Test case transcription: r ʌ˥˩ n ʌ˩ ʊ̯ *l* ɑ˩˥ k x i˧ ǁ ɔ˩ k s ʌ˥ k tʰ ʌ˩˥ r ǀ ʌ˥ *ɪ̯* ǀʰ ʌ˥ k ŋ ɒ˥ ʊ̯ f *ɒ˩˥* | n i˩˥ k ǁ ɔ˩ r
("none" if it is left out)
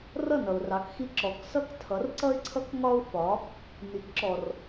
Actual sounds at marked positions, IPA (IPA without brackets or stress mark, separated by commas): r, ɪ̯, ɒ˩˥